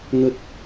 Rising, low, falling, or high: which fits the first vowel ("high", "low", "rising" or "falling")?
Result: low